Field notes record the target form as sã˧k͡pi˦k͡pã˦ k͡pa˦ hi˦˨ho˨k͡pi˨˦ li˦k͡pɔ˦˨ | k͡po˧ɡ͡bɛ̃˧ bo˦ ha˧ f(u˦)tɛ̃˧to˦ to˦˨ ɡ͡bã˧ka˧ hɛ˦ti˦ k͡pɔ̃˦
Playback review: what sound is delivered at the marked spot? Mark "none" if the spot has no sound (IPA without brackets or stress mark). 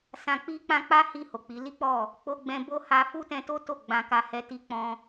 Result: u˦